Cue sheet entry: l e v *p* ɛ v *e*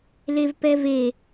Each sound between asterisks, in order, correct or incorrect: correct, correct

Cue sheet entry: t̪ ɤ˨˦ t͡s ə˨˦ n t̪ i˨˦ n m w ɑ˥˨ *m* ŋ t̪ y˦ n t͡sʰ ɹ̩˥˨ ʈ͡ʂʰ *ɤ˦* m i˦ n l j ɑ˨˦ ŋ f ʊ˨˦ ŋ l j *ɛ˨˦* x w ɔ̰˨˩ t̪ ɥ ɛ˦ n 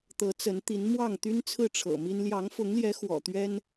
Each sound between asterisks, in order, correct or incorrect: incorrect, incorrect, correct

